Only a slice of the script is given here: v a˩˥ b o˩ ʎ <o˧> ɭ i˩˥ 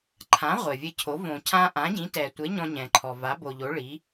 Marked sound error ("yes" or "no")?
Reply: yes